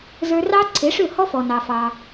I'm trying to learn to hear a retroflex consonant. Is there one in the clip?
yes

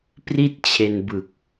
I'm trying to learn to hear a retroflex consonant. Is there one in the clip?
no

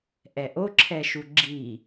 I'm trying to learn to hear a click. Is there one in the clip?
yes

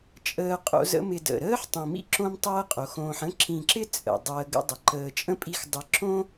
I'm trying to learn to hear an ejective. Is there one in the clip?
yes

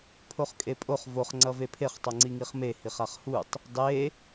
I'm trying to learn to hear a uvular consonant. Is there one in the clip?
yes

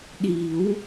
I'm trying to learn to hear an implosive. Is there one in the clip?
yes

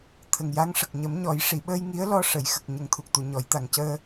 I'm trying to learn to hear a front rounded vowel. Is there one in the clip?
no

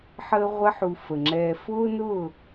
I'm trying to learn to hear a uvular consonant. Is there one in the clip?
yes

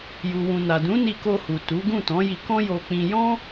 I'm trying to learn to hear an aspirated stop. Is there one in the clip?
no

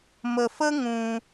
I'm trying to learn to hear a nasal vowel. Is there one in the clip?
yes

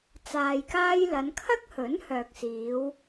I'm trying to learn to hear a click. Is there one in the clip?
no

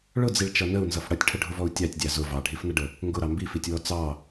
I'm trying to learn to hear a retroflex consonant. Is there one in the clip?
yes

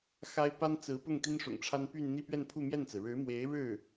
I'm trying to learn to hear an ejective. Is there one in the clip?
no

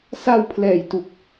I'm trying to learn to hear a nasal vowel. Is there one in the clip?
no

